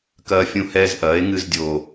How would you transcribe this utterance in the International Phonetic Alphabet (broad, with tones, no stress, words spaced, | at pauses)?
kɐː˧fʲũ˧hɛː˧z ʔɐː˩˥e̯ŋɨ˧zdʲo˨˩